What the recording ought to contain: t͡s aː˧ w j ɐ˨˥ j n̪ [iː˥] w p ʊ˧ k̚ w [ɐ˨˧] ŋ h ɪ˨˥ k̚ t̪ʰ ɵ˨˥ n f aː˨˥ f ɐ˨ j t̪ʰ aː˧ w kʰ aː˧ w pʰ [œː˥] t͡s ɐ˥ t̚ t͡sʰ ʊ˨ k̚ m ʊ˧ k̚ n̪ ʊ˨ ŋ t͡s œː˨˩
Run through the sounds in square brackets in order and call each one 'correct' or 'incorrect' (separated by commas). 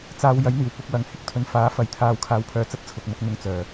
incorrect, correct, incorrect